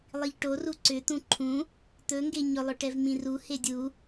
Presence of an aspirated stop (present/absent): present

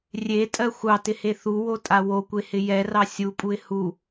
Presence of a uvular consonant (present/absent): absent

